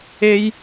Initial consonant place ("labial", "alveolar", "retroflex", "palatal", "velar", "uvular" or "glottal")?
palatal